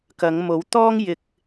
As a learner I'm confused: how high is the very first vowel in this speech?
low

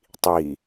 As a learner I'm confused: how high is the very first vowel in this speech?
high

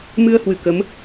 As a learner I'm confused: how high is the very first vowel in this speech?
high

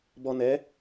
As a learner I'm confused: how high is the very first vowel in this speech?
mid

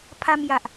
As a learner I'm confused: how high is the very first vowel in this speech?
low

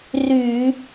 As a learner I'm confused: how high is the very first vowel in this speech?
high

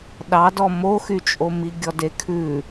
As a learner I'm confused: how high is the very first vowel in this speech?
low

